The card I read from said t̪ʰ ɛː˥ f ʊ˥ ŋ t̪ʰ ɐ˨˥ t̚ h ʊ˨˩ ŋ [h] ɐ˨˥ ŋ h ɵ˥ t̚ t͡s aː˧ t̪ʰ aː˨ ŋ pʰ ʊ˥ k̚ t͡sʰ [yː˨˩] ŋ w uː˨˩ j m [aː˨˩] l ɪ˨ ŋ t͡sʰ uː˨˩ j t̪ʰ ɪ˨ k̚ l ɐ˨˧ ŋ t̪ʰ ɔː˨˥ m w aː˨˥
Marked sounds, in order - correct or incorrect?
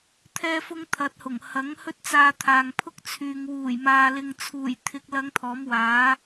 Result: correct, incorrect, incorrect

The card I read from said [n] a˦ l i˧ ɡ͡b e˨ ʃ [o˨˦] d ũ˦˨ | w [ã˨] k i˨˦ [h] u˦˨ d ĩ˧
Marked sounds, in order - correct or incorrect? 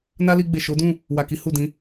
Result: correct, correct, incorrect, correct

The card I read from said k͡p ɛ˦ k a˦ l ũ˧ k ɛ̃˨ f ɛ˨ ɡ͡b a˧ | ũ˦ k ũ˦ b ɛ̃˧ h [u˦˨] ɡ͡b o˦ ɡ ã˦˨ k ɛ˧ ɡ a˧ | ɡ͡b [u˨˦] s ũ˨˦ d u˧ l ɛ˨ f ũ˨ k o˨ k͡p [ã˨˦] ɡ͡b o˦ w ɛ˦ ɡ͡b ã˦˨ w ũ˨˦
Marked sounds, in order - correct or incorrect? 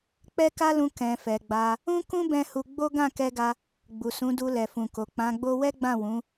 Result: incorrect, incorrect, correct

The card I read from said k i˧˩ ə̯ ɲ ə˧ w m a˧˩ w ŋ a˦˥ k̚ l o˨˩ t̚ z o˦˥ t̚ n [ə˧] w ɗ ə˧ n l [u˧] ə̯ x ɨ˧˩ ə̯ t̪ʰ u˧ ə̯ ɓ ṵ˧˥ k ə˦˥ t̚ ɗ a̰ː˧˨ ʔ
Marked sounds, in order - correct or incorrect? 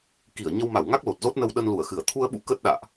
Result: correct, incorrect

